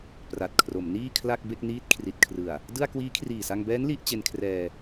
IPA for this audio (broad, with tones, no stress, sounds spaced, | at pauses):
p r a˨˩ t̚ kʰ r o˩˦ m n iː˥˩ kʰ l a˥˩ k̚ b e˥˩ k̚ n iː˦˥ t̚ kʰ r i˨˩ t̚ kʰ r ɯ˨˩ a̯ | d ɯ˥˩ a̯ k w iː˦˥ kʰ r iː˨˩ s a˧ ŋ b ɛː˦˥ n l i˥˩ ʔ t͡ɕ e˧ n kʰ r ɛː˧